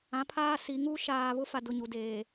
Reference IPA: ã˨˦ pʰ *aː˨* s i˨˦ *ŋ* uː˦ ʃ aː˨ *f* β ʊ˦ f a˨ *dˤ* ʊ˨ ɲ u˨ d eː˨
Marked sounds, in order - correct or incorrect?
incorrect, correct, incorrect, incorrect

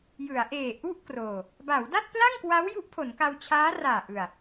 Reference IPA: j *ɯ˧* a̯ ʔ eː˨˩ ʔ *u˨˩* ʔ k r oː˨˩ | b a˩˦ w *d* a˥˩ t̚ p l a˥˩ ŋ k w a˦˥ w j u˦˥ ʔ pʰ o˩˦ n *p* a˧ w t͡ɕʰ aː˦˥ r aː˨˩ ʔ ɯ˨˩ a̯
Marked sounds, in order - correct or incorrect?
incorrect, incorrect, correct, incorrect

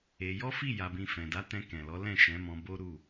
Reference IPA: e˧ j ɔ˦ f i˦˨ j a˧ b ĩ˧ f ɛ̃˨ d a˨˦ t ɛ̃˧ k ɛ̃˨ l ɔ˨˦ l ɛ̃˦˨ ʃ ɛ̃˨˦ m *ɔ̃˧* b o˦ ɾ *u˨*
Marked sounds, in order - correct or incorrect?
correct, incorrect

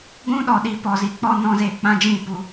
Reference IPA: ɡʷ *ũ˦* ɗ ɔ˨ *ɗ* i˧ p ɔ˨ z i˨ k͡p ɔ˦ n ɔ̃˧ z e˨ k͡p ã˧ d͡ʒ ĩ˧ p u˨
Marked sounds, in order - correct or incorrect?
correct, correct

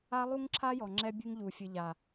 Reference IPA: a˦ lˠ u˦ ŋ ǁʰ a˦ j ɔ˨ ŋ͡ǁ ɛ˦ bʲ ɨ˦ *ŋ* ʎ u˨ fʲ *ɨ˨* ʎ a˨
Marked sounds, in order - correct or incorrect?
correct, correct

